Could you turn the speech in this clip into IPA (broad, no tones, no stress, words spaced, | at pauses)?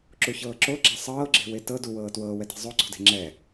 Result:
ǁuçɤːǁoɡ͡ǁa sˤɤːɡ͡ǁe̤ wetɤ duwɤː twɤːwɛti̤ zˤoǀo̤de̤ ŋ͡ǁɛ